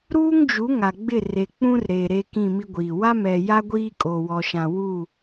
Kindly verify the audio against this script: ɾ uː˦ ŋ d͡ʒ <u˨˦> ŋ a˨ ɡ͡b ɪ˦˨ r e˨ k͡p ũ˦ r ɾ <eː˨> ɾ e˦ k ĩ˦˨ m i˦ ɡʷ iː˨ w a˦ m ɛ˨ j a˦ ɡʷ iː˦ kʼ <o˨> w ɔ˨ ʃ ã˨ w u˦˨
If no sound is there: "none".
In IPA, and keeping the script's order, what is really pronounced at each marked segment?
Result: u˨˦, eː˨, o˨

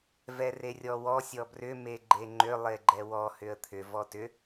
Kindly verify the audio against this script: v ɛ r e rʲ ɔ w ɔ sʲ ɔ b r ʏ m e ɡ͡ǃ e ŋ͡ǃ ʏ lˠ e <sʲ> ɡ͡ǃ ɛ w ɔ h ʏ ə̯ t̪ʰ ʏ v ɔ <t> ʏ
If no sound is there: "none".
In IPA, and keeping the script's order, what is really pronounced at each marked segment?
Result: none, t

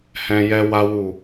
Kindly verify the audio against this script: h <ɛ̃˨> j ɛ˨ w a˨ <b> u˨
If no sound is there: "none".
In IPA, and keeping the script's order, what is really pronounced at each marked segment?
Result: ɛ̃˨, w

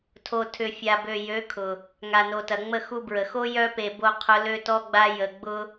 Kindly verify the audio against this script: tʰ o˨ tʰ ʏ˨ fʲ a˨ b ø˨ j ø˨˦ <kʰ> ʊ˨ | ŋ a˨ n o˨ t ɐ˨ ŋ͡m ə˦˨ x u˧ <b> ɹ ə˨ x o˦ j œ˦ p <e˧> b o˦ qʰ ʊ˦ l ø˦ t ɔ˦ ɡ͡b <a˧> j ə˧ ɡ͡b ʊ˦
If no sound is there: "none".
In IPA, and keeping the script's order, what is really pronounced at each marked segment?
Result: kʰ, b, e˧, a˦

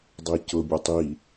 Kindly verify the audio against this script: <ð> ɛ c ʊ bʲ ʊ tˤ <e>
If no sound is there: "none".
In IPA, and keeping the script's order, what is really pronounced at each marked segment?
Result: dˤ, i

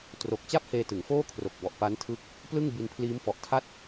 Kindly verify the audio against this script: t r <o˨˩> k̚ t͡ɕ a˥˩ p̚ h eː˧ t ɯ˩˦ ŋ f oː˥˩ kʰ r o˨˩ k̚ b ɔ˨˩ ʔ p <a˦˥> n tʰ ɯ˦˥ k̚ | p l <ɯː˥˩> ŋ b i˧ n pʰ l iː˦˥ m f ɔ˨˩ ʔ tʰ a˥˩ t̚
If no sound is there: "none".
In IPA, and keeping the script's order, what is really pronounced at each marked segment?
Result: o˨˩, a˦˥, ɯ˥˩

